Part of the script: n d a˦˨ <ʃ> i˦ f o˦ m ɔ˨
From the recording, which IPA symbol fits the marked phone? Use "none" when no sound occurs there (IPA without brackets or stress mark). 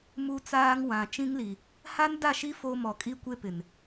ʃ